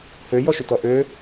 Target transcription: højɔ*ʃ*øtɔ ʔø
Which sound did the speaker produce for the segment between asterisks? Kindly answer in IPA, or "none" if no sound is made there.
ʃ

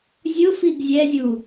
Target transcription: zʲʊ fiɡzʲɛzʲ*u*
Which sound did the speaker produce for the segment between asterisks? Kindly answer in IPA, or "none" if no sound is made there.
u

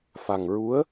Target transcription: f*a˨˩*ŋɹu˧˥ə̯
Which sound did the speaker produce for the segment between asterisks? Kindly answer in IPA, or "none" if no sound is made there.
a˨˩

